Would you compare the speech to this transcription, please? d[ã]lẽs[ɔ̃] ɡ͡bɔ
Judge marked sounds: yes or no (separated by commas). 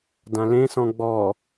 yes, yes